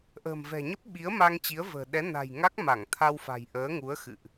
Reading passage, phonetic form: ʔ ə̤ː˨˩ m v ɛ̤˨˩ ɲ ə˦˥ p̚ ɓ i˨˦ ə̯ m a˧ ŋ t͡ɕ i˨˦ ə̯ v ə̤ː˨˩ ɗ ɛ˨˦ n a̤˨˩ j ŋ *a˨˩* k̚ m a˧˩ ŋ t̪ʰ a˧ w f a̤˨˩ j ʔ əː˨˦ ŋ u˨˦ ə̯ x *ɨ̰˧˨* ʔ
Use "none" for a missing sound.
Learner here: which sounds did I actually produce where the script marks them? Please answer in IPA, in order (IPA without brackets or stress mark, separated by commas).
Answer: a˦˥, ɨ̰˧˨